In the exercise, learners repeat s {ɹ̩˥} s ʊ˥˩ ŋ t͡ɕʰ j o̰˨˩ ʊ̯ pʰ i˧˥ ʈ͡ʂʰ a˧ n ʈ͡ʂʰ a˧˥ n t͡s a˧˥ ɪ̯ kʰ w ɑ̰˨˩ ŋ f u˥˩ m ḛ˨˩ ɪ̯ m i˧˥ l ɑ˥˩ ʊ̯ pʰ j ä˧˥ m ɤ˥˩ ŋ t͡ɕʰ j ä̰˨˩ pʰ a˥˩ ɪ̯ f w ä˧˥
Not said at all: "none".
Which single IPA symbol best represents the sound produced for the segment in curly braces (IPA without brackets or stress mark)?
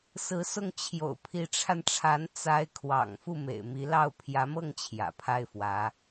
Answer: ɹ̩˧˥